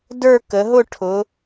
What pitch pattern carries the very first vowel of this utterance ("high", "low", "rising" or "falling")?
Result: falling